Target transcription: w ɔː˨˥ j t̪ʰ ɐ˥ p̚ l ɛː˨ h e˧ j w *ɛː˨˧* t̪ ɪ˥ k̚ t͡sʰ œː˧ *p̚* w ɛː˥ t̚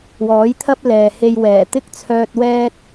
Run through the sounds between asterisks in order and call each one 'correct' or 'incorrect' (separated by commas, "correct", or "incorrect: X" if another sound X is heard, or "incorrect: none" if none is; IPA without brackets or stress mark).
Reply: incorrect: ɛː˨˩, incorrect: t̚